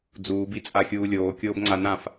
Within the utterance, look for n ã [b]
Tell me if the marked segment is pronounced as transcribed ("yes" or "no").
no